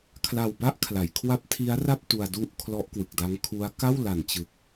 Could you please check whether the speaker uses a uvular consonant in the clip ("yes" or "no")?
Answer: no